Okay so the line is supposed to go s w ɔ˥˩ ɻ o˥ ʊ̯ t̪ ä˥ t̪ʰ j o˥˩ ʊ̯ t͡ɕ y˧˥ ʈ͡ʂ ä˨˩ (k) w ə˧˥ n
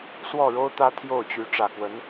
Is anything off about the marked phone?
no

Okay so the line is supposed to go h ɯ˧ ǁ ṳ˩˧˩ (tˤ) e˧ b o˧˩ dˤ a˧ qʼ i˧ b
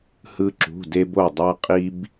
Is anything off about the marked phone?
yes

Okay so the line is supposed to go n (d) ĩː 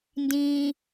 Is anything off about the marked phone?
no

